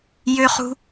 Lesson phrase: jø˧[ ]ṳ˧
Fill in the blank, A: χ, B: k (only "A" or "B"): A